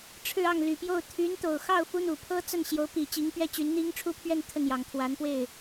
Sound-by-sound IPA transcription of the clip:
ʈ͡ʂʰ ɻ̩˥˧ ɑ˥˩ ŋ l y˨˩ p j o˥˩ ʊ̯ t̪ʰ y˧˥ n t̪ o˨˩ ʊ̯ x ɑ˥˩ ʊ̯ f u˥ n̪ u˨˩ pʰ ɤ˥ t͡s ə˥˩ n ɕ j o˧˥ ʊ̯ p i˨˩ t͡ɕ i˧˥ ŋ p ɥ ɛ˥ t͡ɕ y˧˥ n n̪ i˥ ŋ ʈ͡ʂʰ u˥ pʰ ɥ ɛ˥˧ n t̪ʰ ə˥˩ n j ɑ˨˩ ŋ t̪ʰ w a˧˥ n p w e˥˩ ɪ̯

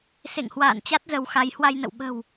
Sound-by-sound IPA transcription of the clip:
s ḛ˧˨ ŋ h w a̰ː˧˨ n t͡ɕ a˦˥ t̚ z ə˧ w x a˨˦ j h w a˧ j n ə̰˧˨ w ɓ ə̤˨˩ w

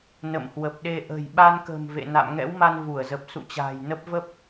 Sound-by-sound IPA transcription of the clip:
n ə̰˧˨ m h w ə˨˩ p̚ ɗ e˧ ʔ ə̤˨˩ j ɓ a˧ n k ə̤˨˩ m v ḛ˧˨ n a̰˧˨ m ŋ ɛ̰˧˥ w m a˧ n v u˧˩ ə̯ z ə˨˩ p̚ s ṵ˧˨ t͡ɕ a̤ː˨˩ j n ə˦˥ p̚ v ə˦˥ p̚

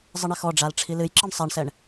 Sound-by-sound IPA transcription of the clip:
zˤ ɨ ɳ ɛ x ɔ ɖ͡ʐ a l ʈ͡ʂʰ i l ɨ j ǁ ɨ ɳ sˤ æ ɳ s ɛ ɳ

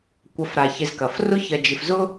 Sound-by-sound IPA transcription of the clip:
kʷ ɐ˨ f ɾ a˩ ç ɪ˨ z k ɐ˩ f r ʊ˦ ç ɐ˨ d͡ʒ ɪ˨ f z ʊ˥

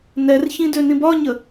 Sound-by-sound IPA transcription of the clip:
n ɛ r ç ĩ d ø n ĩ b ɒ ɲ ə

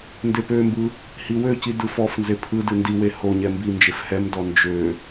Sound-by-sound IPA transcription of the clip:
n d e p ø m b ɯ | h i w ø c i d ɯ f ɔ f n z e pʰ ɯ d ɨ n d i w e h o ɲ ɛ m b i n d͡ʒ e f h ɛ m d ɔ n d͡ʒ ø

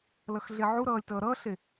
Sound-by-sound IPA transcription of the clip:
l ʌ x ɮ e ʕ u ɾ ʌː lʲ t ʌː ɾ ʌː ɬ e

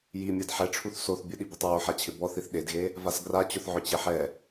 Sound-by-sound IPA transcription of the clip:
j i mʲ a d ħ ɛ ʈ͡ʂʰ u θ s o θ bʲ ʊ ɗ i b i tˤ ɹ o ħ a t͡ɕʰ ɪ b ɔ θ i θ ɗ e d ɣ e | v a s ɡ r a t͡ɕ ʊ θ ʕ ʊ t͡ɕ e ħ ɛ

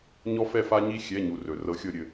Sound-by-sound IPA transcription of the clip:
ɲ ɔ˦ f ɛ˦˨ f a˦ ɲ i˦ xʲ ɛ˩˧˩ ɲ u˩ r ɵ˩ r ɤ˨˥ xʲ ɤ˦˨ ɾʲ ɘ˦˨

